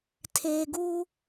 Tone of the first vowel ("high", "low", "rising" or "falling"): low